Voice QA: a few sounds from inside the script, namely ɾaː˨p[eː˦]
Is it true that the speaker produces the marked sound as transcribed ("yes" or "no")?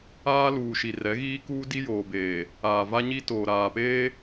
yes